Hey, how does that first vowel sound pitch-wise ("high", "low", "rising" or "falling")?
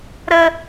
high